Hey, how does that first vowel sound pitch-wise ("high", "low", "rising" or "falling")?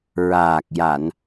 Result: low